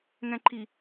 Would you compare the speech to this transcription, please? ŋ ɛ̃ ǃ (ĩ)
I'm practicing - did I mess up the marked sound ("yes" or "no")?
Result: yes